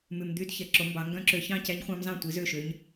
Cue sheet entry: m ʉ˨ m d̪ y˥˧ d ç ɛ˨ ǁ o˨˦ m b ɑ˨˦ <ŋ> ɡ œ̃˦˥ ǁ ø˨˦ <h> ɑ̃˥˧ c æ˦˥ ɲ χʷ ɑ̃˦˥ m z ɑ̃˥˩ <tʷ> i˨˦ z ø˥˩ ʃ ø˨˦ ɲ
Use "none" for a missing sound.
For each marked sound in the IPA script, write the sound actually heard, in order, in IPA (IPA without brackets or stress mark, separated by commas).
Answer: ŋ, ç, tʷ